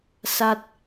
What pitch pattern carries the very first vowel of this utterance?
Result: high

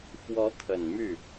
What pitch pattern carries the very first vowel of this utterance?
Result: rising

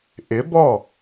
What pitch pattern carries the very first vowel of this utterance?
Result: rising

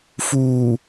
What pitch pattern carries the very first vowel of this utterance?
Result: low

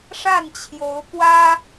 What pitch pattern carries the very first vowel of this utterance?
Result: falling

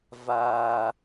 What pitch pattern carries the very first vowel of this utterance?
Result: low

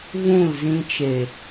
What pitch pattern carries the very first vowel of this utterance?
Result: falling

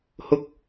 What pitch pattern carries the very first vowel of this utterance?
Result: high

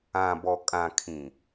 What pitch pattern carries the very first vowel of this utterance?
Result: low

